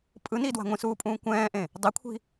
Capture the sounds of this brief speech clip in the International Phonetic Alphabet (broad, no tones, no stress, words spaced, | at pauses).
pʼɯ nidwa̤ ŋʷĩsuːpʼũː kʷɛ̃ːʔẽ | dˤikʷʰi̤